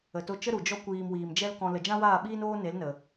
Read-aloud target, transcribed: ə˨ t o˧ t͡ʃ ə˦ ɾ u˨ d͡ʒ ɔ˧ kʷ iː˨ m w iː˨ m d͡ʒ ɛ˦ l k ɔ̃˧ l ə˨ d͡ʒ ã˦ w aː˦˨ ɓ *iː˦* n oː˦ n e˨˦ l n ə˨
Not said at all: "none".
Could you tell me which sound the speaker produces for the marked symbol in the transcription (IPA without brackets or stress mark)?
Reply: iː˦